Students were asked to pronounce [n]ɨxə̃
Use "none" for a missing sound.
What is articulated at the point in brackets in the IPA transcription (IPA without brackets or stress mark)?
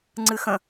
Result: ŋ͡ǀ